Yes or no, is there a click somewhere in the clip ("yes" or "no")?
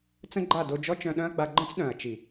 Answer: yes